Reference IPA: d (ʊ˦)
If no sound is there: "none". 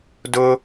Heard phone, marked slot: ʊ˦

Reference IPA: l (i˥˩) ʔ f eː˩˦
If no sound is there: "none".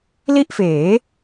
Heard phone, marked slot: i˥˩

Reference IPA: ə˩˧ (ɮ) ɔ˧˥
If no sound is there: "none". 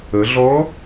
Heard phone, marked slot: ɮ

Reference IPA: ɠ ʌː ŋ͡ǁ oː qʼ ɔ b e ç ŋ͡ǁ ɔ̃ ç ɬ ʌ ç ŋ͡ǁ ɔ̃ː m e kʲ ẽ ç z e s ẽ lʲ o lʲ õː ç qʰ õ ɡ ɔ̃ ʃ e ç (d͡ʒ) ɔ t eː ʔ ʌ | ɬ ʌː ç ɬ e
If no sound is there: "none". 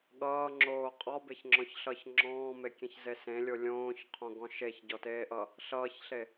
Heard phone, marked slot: ɟ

